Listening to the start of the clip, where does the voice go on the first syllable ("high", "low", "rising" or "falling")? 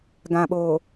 low